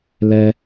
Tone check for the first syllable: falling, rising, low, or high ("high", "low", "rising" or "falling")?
high